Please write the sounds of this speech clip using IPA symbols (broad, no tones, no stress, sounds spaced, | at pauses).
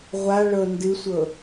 ʁʷ a ɭ ɤ n d ɨ sʷ ɤ